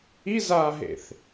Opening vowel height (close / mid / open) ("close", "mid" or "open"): close